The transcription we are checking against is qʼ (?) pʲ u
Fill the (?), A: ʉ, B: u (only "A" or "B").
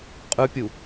A